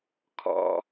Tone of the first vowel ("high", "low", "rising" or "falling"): low